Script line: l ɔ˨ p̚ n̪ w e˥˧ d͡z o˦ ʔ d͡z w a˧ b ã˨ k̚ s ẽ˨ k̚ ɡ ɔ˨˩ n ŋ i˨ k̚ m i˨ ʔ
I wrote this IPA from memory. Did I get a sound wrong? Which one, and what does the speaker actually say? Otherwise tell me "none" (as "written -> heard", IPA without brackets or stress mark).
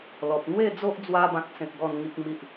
none